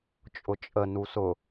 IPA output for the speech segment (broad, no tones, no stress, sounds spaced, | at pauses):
t͡ʃʼ ʊ t͡ʃʼ ə n u s ʊ